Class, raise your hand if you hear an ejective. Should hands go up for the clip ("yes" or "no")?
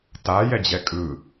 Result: yes